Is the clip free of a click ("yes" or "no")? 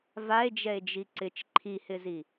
no